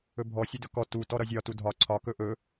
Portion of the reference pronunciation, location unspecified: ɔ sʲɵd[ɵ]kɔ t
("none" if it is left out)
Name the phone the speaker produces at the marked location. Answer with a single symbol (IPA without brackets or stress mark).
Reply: ɵ